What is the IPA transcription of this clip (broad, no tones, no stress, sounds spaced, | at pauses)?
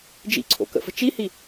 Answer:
d͡ʒ ḭ ǀʰ o̰ k ə̰ f ə̤ t͡ʃ i h i